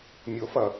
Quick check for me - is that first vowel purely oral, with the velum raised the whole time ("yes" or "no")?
yes